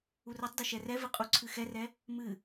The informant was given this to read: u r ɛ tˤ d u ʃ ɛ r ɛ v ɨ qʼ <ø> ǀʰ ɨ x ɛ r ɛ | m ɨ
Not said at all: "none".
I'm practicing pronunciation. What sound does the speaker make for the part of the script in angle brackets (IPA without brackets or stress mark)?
u